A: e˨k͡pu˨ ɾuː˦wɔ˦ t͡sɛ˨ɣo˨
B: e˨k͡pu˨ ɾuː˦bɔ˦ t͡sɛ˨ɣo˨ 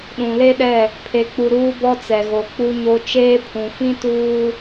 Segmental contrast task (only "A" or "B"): B